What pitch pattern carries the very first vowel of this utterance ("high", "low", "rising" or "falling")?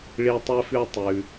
high